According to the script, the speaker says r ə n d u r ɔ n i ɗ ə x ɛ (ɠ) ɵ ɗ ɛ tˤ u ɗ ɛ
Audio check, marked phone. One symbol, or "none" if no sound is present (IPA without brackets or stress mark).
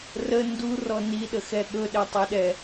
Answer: ɠ